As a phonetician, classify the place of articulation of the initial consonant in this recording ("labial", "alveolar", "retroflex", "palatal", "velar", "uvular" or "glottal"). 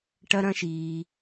retroflex